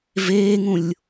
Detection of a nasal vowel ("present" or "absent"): present